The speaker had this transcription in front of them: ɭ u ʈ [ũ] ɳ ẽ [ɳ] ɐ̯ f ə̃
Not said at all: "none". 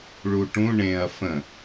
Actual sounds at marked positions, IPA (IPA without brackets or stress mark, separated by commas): ũ, none